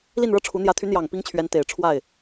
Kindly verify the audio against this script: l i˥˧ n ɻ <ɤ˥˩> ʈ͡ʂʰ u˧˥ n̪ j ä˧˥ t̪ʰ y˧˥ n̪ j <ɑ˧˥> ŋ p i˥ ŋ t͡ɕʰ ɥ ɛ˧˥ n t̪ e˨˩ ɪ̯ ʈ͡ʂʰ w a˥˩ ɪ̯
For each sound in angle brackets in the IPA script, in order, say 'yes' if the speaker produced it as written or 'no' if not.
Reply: yes, no

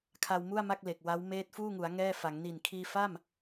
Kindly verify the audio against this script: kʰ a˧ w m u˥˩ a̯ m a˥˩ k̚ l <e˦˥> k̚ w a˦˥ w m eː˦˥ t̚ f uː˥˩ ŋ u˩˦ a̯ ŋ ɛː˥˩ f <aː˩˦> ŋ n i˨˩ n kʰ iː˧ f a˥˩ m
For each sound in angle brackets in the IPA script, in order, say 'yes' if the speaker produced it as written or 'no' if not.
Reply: no, no

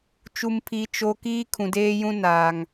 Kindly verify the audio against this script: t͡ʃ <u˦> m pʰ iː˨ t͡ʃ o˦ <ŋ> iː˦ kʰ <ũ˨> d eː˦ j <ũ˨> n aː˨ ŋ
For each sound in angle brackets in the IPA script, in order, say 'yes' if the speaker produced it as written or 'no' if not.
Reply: no, no, yes, no

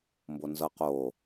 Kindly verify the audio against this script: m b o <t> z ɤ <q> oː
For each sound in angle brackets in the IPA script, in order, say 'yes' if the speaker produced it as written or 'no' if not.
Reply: no, yes

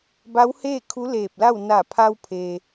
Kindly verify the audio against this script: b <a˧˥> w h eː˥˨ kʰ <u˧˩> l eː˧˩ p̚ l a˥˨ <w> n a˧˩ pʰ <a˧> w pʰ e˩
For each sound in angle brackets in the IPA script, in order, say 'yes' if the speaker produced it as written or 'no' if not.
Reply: yes, no, yes, yes

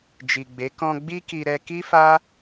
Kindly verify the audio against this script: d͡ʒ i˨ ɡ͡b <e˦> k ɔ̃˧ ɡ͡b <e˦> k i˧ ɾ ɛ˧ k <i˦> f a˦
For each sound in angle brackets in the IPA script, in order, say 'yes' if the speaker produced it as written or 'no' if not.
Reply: no, no, yes

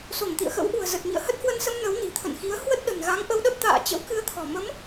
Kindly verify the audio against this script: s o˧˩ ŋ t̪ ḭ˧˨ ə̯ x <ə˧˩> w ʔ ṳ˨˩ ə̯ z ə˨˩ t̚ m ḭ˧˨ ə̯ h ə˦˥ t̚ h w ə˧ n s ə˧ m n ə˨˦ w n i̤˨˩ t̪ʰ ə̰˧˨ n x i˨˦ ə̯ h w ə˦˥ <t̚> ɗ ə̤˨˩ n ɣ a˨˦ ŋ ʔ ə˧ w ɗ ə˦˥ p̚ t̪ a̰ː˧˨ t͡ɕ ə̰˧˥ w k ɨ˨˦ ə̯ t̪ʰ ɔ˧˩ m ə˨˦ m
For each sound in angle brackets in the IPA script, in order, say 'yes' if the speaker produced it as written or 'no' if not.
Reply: no, yes

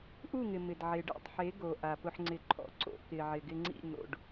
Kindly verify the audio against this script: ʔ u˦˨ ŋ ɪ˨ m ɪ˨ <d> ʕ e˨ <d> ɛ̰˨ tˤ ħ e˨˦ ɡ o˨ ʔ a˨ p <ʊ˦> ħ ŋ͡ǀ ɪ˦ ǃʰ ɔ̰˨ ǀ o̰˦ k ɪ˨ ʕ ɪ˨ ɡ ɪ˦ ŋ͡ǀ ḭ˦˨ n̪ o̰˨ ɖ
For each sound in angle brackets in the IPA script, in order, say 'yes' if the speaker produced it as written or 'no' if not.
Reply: yes, no, yes

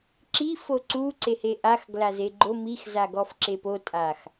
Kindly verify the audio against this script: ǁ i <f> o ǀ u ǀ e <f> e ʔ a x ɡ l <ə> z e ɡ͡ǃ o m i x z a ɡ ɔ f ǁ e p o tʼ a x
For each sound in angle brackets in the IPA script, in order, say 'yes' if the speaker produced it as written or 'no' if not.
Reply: yes, no, no

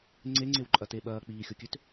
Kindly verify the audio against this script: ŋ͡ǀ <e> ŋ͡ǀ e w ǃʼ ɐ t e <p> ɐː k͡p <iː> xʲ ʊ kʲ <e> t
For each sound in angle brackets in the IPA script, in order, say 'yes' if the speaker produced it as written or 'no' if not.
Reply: yes, no, yes, no

